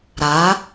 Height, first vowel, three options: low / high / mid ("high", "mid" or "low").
low